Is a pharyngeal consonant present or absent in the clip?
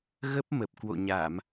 absent